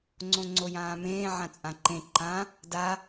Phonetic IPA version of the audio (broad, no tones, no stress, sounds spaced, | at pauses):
ŋ͡ǀ õ ŋ͡ǀ o j ãː m ẽː ʕ ã t͡sʼ ã ǃ ẽ ǃ ã | d a